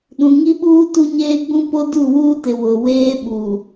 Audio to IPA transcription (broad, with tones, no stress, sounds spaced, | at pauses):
ɗ ũ˨ ŋ i˦ ɓ uː˦ t u˦ ɲ eː˦ ɡ͡b ũ˦ p o˦ d u˦˨ w uː˦ t ɪ˨ w ʊ˨ w eː˦ ɓ u˨